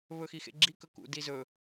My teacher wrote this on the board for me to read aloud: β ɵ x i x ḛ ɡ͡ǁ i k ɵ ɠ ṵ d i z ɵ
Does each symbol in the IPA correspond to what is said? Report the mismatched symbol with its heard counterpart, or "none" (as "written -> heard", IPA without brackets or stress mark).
ɠ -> k